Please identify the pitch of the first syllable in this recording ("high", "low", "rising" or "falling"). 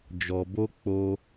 low